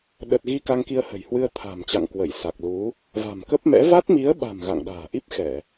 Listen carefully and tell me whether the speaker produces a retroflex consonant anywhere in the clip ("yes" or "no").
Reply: no